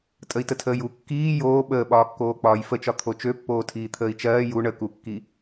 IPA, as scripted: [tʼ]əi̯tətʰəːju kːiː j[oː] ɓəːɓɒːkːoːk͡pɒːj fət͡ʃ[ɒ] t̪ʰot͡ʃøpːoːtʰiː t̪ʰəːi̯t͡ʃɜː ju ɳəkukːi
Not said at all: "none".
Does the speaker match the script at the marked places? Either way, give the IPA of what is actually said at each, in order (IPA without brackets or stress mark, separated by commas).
tʼ, oː, ɒ